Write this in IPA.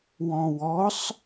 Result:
w ɔ̃ w ɔ sˤ

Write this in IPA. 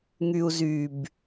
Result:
ŋ y u̯ z y b

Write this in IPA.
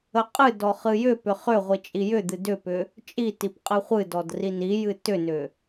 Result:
ə qʼ ɨ d ɔ χ ɨ j ʏ p ʏ χ ʏ ʁʷ i t͡ʃʼ i j ʏ d̪ ɨ d ʏ p ʏ | t͡ʃʼ i t i p qʼ ɨ χʷ ɨ d ɔ d r i n i j ɨ t ʏ n ʏ

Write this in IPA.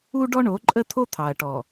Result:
u˦ ɖ ɔ˦ ɳ o˨˦ ǃʼ ə˦ t̪ʰ o˦ t̪ʰ ɑ˨ ɐ̯ ʈ ɔ˨

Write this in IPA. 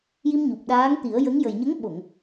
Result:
j i˧ m ɲ u˨˩ p̚ ɗ aː˧˥ ŋ t̪ i˨˩˦ ə̯ j ə˧˥ ŋ j ə˨˩ j ɲ ə˧˥ ŋ ɓ o˨˩˨ ŋ

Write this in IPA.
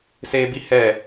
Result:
s eː˦ b i˦ h ɛ˦˨

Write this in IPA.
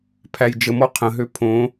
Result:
pʰ æ j d͡ʒ ə m ɔ qʰ ə̃ ɦ ø pʰ õ

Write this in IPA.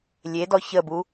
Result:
lʲ e d ɔ ç ə b u

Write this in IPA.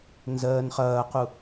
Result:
n z ɜː n χ ɐː q u

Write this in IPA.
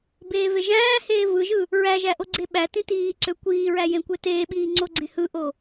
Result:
b eː v e ʒ æ̃ː h eː v ɯ ʒ ɯ | ɹ æ ʒ æ ʔ o ɡ͡ǀ e ɓ æ t ĩ t iː ǀ ø kʷ iː ɹ æ j ẽ kʷ e t eː ɓ iː ŋ͡ǀ o ɡ͡ǀ ẽ h ɯ ʔ o

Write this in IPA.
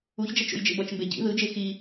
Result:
u ç d͡ʒ ɛ t͡ʃ o̰ j d͡ʒ ḛ b ʌ t͡ʃ m b e ɟ ḭ ð ɯ d͡ʒ e x i

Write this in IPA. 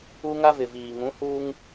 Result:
u˦ ŋ a˦ v ɪ˨ v iː˨ ŋ ũ˨˦ h uː˦ ŋ

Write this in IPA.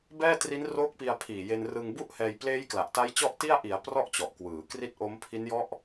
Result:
b ɛː˥˩ t r i˦˥ n r oː˦˥ k̚ p i˧ a̯ pʰ iː˨˩ j e˧ n r ɯ˧ ŋ b u˥˩ ʔ h ɛː˧ j p l eː˦˥ j k l a˨˩ ʔ t a˦˥ j t͡ɕ ɔ˥˩ ʔ t i˥˩ a̯ ʔ i˩˦ a̯ p r ɔ˥˩ ʔ t͡ɕ ɔ˨˩ ʔ k w ɯː˩˦ k r i˦˥ t̚ ʔ o˦˥ m pʰ i˦˥ n j ɔ˦˥ ʔ

